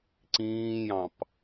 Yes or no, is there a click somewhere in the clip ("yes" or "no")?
yes